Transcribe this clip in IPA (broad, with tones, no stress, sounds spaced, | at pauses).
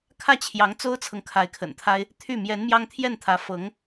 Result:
kʰ ä˥˩ t͡ɕʰ j ɑ˧˥ ŋ t͡s o˥ ʊ̯ t͡sʰ ɤ˨ ŋ kʰ a˧˥ ɪ̯ kʰ ə̰˨˩ n t̪ʰ a˥ ɪ̯ | t̪ʰ y˥˩ m j ɛ˧˥ n m j ɑ˥ ŋ t̪ʰ j ɛ˥˩ n t̪ʰ ä˧˥ f ɤ˧˥ ŋ